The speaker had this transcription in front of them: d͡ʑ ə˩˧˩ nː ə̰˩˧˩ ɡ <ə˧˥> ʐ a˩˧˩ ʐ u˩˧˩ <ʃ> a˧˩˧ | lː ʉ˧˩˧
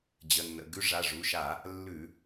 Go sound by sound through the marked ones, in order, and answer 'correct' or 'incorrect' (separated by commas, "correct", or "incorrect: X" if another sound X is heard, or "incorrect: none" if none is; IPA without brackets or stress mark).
incorrect: ʉ˧˥, correct